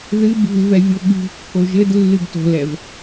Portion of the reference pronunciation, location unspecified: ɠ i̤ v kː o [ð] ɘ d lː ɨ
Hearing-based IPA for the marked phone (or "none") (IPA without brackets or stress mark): ʒ